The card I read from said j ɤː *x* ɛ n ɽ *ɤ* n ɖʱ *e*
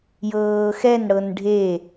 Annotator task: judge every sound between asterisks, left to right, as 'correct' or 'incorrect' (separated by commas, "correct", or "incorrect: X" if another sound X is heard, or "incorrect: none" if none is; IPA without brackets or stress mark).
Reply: correct, correct, correct